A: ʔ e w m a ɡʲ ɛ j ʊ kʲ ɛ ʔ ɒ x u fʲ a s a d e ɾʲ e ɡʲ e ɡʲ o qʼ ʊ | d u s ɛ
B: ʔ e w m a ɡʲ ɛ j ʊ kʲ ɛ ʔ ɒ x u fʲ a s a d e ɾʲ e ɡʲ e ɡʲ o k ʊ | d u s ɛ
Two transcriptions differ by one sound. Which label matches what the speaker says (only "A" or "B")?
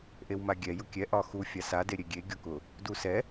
B